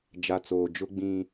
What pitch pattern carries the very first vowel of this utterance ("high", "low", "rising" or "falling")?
low